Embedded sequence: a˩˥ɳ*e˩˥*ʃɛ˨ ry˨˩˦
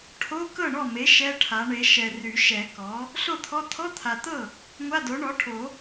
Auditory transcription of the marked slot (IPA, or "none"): e˩˥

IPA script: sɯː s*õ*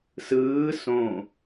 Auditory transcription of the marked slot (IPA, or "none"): õ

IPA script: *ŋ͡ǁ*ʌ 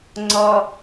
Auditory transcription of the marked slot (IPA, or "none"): ŋ͡ǀ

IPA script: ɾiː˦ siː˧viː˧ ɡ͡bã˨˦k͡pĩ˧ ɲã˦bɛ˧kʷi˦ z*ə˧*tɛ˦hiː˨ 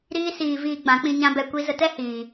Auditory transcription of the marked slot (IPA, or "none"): ə˧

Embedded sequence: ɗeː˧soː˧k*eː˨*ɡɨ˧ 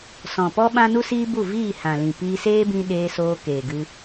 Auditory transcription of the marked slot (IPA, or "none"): eː˨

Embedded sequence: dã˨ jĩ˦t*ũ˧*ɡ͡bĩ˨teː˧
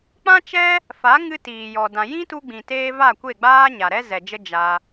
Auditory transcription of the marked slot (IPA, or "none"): u˧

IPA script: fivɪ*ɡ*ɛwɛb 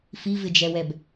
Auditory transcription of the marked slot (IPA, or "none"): d͡ʒ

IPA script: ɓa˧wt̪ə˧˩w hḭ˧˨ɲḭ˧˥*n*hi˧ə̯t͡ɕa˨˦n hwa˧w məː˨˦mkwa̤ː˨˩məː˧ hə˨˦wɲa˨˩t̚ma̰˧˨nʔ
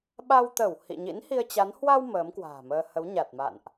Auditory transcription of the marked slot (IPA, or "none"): n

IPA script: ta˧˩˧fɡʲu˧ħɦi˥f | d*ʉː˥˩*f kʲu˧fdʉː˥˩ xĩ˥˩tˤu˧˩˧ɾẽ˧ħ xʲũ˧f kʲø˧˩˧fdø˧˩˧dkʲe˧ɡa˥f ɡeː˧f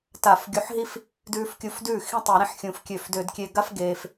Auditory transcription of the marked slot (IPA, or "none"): ʉː˧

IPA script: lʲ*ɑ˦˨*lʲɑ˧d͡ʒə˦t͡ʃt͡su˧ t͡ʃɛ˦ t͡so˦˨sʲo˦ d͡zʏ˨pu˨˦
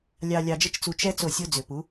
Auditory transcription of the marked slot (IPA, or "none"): ɑ˧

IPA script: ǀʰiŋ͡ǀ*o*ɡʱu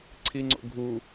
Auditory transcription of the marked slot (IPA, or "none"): o̰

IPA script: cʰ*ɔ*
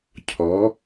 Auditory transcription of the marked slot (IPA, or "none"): ɔ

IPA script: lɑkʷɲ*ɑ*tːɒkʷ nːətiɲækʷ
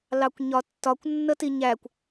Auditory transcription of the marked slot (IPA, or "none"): ɒ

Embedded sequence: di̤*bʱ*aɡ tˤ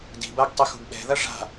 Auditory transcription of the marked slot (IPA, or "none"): b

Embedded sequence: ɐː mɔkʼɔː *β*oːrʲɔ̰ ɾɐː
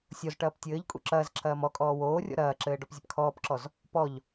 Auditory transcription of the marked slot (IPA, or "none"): w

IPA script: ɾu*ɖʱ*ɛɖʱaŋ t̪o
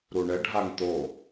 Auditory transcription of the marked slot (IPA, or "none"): ɳ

